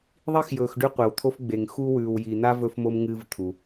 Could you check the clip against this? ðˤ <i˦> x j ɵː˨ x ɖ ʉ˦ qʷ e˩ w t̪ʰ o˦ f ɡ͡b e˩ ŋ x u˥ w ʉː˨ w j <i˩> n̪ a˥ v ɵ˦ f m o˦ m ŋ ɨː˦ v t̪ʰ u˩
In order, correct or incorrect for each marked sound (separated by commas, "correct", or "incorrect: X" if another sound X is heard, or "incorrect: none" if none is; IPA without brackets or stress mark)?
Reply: incorrect: i˥, incorrect: i˨